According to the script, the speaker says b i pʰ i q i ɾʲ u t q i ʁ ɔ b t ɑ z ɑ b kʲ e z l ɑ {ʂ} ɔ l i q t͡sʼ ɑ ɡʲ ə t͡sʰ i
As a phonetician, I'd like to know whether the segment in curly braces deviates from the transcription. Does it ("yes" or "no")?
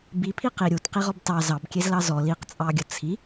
yes